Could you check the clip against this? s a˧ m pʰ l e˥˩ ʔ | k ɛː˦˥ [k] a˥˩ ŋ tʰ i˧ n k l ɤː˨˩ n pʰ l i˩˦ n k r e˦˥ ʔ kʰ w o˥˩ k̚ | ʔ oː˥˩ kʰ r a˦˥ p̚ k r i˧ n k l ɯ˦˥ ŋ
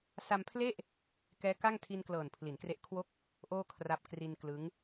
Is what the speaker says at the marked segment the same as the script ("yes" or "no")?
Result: yes